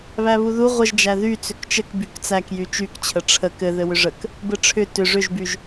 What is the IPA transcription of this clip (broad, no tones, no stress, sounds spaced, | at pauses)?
β æ β u ð u ʁʷ ə ʒ d͡ʒ æ ð y t͡s ʏ k t͡ʃ ə k b y k t͡s æ k j y t͡ʃ y k t͡ɕʰ ə ʈ͡ʂʰ ə k ɘ ð ɘ w ʏ ʐ ə k | b ɘ ʈ͡ʂʰ ʏ t ʏ ʐ ʏ ʒ b y ʒ